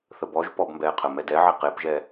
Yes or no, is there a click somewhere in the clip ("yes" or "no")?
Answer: no